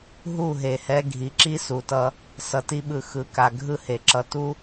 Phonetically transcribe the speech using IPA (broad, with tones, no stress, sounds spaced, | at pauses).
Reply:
ɦ u˦˨ ɦ e˨ h ɛ˧ ɡʱ i˨ ǁ i˦ s u˨ t ʌ˧ | s ʌ˨ t i˧ ɓ ɯ˨ x ɯ˨ k a˨ ɡʱ ɯ˦ h e˨ ǁ ʌ˧ t u˦